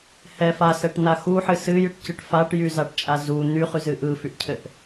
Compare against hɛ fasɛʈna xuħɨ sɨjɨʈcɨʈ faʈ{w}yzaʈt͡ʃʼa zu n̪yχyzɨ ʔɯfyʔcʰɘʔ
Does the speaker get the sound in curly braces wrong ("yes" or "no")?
yes